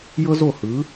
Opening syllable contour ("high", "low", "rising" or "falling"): high